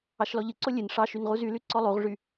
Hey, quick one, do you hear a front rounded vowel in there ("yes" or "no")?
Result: yes